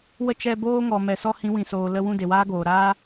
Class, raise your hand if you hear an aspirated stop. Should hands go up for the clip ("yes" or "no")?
no